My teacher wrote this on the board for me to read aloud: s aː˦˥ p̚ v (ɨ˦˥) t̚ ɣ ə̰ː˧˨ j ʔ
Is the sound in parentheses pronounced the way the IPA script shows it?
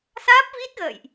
no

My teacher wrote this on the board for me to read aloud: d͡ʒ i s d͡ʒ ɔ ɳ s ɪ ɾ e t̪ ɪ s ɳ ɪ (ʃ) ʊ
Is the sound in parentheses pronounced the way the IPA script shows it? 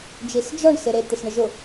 no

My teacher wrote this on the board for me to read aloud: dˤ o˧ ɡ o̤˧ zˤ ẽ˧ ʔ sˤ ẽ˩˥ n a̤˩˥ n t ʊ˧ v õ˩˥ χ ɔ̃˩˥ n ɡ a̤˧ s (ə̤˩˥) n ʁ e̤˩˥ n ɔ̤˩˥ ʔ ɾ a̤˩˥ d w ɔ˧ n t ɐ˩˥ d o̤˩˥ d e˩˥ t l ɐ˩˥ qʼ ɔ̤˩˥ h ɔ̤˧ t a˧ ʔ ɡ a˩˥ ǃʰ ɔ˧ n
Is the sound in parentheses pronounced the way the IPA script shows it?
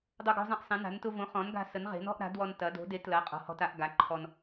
no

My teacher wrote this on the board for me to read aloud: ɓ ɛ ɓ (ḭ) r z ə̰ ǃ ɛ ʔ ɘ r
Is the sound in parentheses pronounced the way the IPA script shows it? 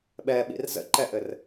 yes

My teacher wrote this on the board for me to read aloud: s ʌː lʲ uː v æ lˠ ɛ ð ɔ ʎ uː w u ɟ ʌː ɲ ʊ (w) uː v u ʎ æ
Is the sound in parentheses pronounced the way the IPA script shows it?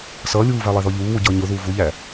no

